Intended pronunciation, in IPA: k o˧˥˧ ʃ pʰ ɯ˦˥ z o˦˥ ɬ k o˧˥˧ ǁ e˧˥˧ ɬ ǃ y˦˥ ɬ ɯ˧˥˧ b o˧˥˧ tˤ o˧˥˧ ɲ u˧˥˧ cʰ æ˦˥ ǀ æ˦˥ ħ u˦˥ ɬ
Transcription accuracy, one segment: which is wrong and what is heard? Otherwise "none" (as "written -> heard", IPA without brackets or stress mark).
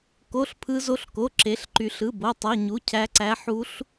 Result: ʃ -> ɬ